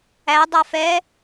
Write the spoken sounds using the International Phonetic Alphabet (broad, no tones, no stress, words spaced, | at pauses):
æ dˤafɛ